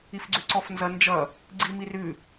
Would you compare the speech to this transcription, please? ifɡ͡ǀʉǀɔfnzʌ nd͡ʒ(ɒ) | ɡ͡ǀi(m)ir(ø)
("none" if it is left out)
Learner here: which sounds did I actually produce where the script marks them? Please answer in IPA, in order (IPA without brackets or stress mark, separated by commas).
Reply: ʌ, m, ʉ